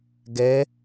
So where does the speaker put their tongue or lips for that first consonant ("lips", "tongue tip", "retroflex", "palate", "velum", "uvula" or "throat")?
velum